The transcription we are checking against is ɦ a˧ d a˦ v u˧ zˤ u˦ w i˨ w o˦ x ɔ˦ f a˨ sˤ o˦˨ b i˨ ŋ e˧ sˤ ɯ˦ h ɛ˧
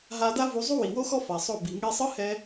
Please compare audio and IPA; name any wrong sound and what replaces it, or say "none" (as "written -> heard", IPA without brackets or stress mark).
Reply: none